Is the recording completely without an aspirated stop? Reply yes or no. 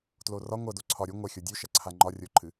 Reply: no